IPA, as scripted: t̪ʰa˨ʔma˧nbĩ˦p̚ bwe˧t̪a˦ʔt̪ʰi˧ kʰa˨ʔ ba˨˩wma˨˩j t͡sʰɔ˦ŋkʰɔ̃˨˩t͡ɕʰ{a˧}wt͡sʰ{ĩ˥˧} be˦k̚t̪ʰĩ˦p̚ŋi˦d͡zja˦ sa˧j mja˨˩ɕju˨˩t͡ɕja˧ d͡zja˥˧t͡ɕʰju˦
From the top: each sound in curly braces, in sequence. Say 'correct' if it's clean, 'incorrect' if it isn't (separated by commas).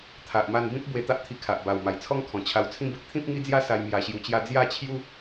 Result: correct, correct